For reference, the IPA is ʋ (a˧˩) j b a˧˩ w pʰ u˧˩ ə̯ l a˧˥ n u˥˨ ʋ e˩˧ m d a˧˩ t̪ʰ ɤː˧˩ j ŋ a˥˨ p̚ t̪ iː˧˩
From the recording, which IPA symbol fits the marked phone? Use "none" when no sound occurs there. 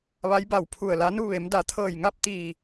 a˧˥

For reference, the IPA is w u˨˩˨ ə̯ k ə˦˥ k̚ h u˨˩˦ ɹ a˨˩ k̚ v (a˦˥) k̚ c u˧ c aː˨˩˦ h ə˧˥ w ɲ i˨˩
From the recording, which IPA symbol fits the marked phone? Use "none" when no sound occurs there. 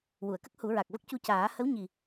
ə˦˥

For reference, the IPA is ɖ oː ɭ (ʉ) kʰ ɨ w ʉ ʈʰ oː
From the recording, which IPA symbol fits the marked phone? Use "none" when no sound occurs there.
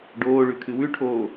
ʉ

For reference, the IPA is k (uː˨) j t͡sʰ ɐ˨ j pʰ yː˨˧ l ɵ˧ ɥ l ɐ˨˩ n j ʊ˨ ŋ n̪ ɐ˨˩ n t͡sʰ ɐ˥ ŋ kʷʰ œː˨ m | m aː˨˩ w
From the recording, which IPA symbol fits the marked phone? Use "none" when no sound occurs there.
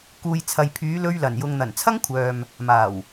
uː˨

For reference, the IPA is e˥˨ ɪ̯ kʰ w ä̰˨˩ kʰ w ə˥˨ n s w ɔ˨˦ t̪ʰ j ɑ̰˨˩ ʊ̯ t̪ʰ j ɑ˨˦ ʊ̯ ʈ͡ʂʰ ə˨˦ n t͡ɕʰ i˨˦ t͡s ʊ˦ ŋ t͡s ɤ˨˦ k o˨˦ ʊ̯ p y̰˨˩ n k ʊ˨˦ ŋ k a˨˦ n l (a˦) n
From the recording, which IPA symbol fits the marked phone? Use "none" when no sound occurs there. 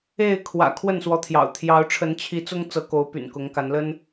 ə˦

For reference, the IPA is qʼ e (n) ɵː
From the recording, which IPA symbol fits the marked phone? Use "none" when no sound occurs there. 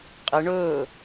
ɳ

